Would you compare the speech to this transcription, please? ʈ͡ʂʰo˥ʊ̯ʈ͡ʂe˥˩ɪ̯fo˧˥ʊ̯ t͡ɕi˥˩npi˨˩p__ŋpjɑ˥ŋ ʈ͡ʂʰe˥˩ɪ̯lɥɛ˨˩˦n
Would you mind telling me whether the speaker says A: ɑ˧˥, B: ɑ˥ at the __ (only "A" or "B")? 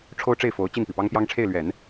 B